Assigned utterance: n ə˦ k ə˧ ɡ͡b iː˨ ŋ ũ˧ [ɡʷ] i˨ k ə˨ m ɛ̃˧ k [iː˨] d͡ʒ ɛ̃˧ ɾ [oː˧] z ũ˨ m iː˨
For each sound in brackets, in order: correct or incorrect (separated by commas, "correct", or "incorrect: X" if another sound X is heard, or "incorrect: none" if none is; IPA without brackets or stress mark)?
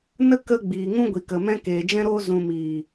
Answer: correct, incorrect: eː˨, correct